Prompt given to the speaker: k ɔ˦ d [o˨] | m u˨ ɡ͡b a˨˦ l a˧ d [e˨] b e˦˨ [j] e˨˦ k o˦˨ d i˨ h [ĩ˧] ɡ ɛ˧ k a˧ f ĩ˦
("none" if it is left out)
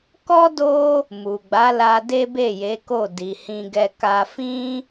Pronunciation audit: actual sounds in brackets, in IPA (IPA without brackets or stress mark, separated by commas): o˦, e˦, j, ĩ˧